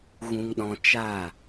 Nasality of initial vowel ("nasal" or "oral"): nasal